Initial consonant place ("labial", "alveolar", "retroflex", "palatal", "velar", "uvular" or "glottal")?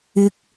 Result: velar